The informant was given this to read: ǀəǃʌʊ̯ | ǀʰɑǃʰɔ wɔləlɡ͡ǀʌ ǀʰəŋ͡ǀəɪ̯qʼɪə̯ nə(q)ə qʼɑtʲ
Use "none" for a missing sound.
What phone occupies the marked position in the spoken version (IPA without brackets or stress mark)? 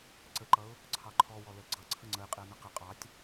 q